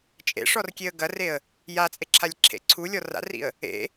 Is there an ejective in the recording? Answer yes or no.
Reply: yes